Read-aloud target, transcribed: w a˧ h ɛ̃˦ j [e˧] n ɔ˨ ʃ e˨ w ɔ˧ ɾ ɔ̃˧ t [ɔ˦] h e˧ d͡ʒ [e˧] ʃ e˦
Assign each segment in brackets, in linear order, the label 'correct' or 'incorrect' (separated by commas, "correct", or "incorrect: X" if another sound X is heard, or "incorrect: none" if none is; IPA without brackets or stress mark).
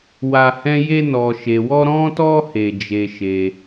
correct, incorrect: ɔ˧, incorrect: e˦